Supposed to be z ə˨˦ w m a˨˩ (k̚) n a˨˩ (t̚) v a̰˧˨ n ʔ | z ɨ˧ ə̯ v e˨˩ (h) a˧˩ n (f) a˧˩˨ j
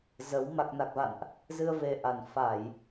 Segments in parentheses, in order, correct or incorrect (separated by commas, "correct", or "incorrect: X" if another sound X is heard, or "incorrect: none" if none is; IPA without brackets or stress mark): correct, incorrect: k̚, incorrect: ʔ, correct